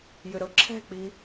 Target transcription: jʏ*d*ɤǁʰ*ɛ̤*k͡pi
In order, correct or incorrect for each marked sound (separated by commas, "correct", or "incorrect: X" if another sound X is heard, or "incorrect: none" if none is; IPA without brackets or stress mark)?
incorrect: ɾ, correct